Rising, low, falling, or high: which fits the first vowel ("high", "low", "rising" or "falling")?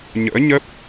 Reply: rising